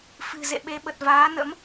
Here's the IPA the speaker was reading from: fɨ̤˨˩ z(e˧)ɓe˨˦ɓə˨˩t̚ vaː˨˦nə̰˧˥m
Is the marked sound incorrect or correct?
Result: incorrect